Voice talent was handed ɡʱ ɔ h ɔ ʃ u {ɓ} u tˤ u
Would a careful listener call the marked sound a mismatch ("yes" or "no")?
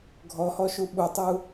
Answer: no